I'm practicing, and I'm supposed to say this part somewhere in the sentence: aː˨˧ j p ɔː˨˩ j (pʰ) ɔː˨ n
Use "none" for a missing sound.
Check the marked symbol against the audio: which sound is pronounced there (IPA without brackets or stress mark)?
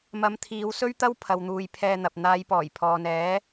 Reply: pʰ